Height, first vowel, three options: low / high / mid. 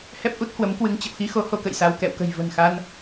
mid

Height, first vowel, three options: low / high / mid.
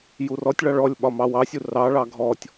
high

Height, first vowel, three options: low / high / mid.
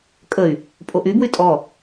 mid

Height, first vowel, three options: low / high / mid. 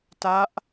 low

